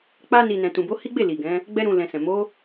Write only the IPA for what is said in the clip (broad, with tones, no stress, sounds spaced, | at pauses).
k͡p a˧ n i˨ n ɛ̃˨ t ũ˨ b o˨˦ h i˦ ɡ͡b e˦˨ l i˨ ɡ ɛ̃˨˦ | ɡ͡b ɛ˦ ɾ ũ˧ l ɛ̃˧ s ɛ̃˨ m o˨˦